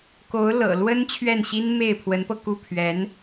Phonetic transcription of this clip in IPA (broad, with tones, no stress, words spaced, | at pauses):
ko˧˥ʊ̯lɤ̰˨˩lwə˥n t͡ɕʰɥɛ˥˩nɕi˥n me˥˩ɪ̯pʰwə˧˥npɤ˧ku˥˩ pʰɥɛ˧˥n